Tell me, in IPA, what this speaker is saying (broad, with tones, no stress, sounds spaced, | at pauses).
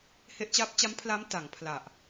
h e˦˥ ʔ t͡ɕ aː˦˥ p̚ t͡ɕ a˦˥ m pʰ l aː˦˥ m t a˩˦ ŋ pʰ l a˨˩ ʔ